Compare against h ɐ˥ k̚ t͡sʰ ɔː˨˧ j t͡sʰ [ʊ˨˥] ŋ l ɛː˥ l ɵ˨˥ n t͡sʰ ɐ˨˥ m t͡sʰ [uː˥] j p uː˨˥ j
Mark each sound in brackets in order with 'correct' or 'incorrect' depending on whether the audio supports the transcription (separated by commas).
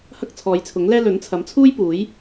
correct, correct